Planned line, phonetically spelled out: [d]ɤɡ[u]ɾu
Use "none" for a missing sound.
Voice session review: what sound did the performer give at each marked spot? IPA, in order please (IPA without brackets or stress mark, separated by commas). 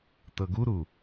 t, u